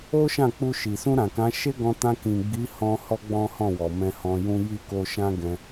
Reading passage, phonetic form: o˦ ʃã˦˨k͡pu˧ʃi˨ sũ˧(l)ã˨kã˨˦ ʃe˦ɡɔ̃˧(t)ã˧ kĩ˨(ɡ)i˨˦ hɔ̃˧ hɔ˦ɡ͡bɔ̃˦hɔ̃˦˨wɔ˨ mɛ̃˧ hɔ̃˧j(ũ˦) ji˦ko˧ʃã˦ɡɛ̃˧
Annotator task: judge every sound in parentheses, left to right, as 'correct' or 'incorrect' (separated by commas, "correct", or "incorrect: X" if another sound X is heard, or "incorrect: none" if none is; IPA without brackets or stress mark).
incorrect: ɾ, correct, incorrect: ɡ͡b, correct